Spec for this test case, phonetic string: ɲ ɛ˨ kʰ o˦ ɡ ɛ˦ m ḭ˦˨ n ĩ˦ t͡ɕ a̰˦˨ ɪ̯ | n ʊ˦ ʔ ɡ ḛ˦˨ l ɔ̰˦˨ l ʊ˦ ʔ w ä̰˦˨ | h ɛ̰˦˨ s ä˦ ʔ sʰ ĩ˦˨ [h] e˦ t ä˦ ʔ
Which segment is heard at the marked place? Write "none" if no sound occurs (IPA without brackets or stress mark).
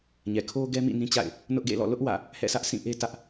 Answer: ʔ